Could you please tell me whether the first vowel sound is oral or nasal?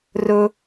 oral